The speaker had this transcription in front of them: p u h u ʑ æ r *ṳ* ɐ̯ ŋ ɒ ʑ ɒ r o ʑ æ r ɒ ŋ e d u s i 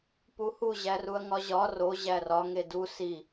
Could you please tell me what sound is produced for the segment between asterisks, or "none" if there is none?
u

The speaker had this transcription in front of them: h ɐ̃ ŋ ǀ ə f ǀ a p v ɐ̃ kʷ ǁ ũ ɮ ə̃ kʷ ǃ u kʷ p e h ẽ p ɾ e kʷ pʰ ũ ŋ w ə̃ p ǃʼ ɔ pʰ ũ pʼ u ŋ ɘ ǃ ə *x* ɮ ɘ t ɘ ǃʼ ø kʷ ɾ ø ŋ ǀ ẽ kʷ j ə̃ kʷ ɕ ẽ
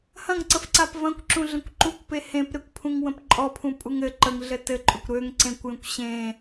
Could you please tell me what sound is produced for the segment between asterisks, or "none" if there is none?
ŋ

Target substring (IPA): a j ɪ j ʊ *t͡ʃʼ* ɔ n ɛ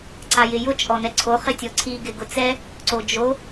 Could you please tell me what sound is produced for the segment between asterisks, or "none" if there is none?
t͡ʃʼ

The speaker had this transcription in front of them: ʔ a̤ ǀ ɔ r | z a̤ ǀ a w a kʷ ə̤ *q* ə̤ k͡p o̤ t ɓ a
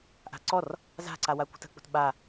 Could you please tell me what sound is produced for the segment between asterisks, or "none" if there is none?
t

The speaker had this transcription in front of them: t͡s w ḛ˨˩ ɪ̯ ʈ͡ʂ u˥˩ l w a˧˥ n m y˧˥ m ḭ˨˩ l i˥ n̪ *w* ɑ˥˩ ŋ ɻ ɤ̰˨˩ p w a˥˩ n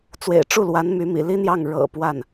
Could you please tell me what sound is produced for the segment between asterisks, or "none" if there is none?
j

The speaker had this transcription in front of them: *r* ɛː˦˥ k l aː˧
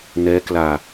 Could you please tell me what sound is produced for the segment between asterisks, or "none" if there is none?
n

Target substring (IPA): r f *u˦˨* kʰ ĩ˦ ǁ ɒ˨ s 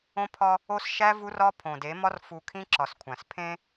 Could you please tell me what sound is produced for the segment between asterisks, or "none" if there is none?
u˨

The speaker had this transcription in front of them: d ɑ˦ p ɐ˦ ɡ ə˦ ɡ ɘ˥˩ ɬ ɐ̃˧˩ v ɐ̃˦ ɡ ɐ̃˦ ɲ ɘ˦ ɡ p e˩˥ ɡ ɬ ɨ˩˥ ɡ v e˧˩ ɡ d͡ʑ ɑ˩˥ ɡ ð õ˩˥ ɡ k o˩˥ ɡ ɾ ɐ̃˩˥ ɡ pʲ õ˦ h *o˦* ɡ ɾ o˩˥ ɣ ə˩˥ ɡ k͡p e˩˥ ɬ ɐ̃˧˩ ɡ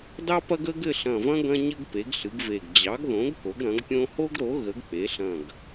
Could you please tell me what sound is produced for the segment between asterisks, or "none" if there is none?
o˦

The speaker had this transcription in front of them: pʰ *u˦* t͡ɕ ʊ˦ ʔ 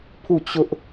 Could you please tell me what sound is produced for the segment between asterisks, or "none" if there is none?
u˦˨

